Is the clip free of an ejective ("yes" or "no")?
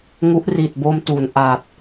yes